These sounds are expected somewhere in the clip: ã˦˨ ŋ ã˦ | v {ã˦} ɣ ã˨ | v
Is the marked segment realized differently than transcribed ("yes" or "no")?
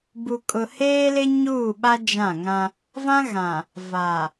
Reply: no